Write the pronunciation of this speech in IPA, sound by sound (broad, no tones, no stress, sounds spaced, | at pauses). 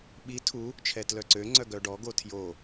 ɓ i tʰ u | t͡ʃʰ ɛ t l œ ǀ ø ŋ͡ǀ œ ɡ œ ɖ ɔ ɡ o tʰ j o